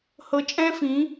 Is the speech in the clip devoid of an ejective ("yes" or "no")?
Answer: no